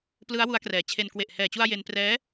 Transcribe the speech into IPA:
plɯ˦˥a̯ wu˦˥a̯krɛː˨˩t͡ɕʰe˧n kwe˨˩ʔhɛː˨˩t͡ɕu˧a̯ je˧nprɛː˦˥

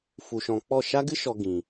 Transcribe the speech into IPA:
fu˨ʃɔ̃˨k͡pɔ˦˨ ʃa˦ɡɨ˦ʃɔ˨ ɡĩ˨

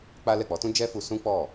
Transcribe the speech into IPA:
k͡pa˦ lɛ˦˨k͡pɔ˨˦tũ˦ d͡ʒɛ˦fu˧ sũ˦k͡pɔ˦˨

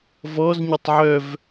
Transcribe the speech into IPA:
vɔz ɲotˤʕœv

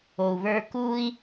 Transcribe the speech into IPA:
o˩u̯βə˞˧ kuː˥i̯

